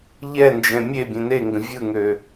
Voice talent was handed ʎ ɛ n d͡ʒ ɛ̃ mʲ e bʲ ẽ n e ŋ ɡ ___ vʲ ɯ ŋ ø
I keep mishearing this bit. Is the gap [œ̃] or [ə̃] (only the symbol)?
ə̃